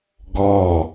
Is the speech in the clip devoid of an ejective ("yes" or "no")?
yes